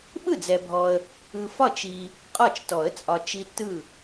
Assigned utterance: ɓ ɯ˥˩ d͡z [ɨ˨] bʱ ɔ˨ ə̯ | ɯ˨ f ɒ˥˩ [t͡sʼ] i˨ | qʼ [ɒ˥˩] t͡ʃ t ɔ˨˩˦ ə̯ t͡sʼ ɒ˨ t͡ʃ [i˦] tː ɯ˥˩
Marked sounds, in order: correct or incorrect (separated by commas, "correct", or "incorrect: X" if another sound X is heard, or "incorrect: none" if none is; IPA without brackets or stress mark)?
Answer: incorrect: ɛ˨, incorrect: t͡ʃ, correct, correct